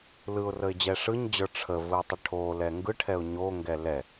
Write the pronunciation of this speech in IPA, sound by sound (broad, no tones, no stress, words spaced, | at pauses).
lɯʊ̯rəɪ̯d͡ʑɛ ʂɯɲd͡ʑə˞ ʈ͡ʂʰəvɯtˤə ʈʰolɛ ŋɡɯʈʰɛʊ̯ ɲoŋɡɛ lɛ